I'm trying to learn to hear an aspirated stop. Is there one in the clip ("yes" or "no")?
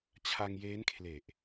yes